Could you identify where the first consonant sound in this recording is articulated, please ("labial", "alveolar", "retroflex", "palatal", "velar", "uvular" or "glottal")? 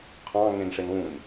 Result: uvular